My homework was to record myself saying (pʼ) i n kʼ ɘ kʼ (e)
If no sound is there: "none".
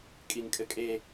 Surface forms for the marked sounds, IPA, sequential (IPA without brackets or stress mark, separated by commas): kʼ, e